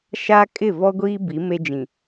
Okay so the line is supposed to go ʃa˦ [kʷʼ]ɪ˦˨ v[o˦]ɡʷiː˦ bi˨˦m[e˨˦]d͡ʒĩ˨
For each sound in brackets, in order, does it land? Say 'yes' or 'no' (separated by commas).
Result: no, no, no